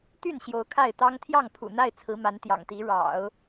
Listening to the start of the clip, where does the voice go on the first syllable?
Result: falling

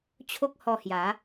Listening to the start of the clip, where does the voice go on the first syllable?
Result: high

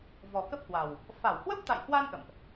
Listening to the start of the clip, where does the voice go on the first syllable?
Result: low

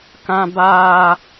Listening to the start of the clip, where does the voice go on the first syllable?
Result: high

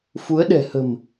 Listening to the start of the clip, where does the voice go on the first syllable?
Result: rising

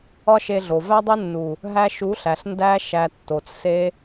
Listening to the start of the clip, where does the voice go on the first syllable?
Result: high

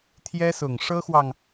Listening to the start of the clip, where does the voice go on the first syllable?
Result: high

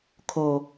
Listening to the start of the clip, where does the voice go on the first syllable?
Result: low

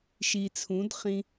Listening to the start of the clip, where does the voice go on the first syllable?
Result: low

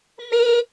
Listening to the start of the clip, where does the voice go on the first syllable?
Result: high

